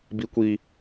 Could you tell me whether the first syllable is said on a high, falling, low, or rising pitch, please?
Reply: high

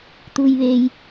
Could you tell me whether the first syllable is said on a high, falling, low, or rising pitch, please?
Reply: low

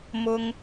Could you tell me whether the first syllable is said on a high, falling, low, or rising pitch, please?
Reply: high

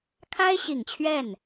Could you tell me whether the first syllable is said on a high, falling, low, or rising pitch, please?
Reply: high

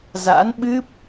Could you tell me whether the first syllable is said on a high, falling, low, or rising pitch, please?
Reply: rising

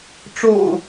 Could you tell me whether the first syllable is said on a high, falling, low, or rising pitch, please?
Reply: low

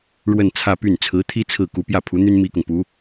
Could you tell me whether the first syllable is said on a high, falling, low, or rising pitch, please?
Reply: falling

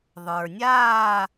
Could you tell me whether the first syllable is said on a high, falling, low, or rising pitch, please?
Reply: low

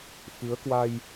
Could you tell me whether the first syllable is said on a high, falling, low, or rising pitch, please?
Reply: rising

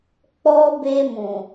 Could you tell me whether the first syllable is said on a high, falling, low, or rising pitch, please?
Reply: high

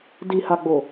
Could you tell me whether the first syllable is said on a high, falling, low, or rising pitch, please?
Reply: low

